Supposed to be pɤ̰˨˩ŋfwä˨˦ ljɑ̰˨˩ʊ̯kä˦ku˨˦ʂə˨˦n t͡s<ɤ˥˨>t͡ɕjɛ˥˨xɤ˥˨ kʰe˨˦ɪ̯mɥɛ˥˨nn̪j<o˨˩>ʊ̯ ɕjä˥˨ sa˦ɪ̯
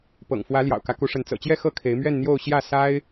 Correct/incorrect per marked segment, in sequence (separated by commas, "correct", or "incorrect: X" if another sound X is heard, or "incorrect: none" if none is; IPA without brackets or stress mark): incorrect: ɤ̰˨˩, incorrect: o˥˨